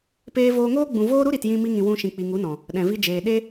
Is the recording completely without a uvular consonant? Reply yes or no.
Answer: yes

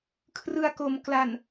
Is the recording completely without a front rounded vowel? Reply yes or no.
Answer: yes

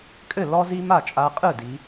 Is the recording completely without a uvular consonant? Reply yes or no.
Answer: no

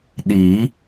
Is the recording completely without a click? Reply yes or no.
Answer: yes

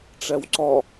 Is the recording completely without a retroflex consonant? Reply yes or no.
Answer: no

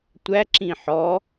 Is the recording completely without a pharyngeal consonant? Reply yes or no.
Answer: no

